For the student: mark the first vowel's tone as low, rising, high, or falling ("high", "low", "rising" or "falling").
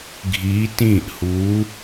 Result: rising